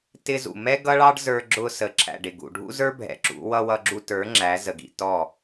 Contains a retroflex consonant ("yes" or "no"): yes